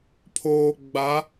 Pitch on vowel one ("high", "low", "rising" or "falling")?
low